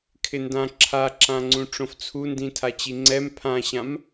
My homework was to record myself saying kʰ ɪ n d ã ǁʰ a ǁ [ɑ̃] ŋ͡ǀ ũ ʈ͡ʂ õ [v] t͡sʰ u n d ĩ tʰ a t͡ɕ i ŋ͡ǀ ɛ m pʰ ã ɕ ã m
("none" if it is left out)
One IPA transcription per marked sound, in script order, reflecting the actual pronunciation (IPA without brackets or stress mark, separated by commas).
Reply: ã, f